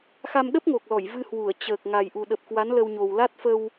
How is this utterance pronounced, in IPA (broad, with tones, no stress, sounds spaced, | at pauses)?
x a˧ m ɗ ə˦˥ p̚ ŋ o˨˩ k̚ l ɔ˧˩ j v ɨ˧ h w u˧˩ ə̯ t͡ɕ əː˨˩ k̚ ŋ a˨˩ j ʔ u˨˩ ɗ ə˨˩ p̚ k w a˨˦ n l ə˧ w ɲ o˨˩ w l a˦˥ t̚ f ə˧ w